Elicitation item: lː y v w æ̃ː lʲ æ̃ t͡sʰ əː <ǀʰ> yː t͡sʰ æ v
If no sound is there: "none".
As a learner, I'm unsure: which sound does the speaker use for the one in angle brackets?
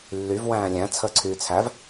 ǀʰ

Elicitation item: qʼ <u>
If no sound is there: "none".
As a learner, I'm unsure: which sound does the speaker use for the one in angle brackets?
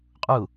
u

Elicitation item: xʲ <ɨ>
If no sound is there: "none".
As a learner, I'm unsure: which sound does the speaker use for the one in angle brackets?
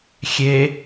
e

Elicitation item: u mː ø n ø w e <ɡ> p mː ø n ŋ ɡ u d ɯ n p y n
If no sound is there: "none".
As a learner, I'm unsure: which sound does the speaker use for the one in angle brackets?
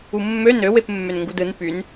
none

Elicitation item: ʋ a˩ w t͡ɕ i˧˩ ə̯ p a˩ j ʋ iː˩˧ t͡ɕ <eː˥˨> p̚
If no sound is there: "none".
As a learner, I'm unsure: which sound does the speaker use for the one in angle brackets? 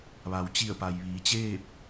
eː˥˨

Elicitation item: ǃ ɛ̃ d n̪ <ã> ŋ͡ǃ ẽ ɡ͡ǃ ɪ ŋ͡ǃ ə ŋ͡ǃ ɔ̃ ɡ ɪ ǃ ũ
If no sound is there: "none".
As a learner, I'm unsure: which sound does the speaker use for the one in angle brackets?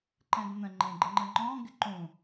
ə̃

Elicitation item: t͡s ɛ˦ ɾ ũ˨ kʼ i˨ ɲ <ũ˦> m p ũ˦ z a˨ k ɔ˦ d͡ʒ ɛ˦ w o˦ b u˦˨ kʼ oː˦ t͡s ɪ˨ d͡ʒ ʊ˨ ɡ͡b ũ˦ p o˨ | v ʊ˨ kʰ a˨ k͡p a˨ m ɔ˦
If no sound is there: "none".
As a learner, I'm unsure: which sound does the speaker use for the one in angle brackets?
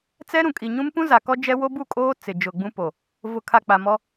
ũ˦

